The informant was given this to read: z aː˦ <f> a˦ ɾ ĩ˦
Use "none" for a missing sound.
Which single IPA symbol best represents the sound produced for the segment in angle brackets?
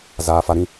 f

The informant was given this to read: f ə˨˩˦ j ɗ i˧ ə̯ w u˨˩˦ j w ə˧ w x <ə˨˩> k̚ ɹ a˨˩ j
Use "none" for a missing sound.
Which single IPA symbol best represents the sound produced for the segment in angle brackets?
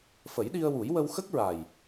ə˦˥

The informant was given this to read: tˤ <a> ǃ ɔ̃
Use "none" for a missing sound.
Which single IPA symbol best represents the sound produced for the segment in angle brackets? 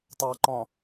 a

